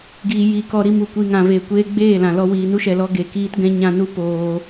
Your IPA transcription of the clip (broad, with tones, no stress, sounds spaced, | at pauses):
ɡ iː˨ j i˨ k ɔ˨ ɾ i˧ m u˨ kʷ i˨ ŋ ã˨ v e˨ kʷ eː˧ ɡ͡b eː˦˨ l ã˨ l ɔ˧ w iː˨ n u˦ ʃ ɛ˨ l ɔ˧ ɡ e˨ k iː˦ t ɡ ɛ̃˦ ɲ ã˧ n u˦ p oː˧